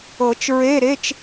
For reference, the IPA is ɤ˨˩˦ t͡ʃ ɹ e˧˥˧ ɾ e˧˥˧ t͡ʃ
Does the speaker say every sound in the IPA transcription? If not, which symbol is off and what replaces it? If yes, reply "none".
none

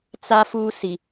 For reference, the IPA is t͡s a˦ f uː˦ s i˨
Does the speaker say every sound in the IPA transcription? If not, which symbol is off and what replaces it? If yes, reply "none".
none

